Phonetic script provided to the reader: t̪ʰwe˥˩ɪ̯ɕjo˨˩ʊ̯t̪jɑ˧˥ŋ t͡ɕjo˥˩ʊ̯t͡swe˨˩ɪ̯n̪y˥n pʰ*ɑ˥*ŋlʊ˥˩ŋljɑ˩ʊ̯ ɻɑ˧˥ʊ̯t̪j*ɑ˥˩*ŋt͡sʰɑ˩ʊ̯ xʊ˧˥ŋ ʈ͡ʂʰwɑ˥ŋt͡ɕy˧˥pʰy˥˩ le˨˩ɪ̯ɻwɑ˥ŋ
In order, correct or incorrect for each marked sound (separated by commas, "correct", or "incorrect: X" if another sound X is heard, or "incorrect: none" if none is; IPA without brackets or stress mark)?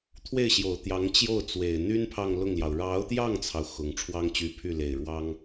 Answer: incorrect: ɑ˥˧, correct